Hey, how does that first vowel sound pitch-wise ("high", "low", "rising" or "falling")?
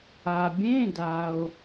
low